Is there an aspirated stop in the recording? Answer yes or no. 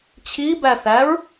yes